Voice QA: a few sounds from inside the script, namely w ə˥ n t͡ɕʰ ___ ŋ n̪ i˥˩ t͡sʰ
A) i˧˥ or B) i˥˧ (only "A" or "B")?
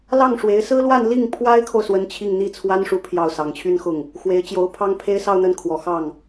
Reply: B